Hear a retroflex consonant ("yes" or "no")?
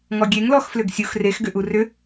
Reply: no